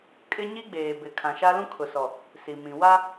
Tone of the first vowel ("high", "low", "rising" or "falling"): high